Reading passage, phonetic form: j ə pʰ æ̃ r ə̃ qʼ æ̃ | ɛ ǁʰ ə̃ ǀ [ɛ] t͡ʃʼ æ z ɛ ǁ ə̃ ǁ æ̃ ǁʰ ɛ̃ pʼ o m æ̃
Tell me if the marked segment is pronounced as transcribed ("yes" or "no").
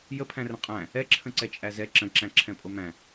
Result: yes